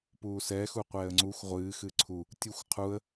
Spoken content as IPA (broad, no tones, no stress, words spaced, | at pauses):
puːsɛ xuqʷɛːə̯ŋ͡ǀuxʷ ʁʷɨː xɨːǀʰu | tʲɨxʷ qʰuə̯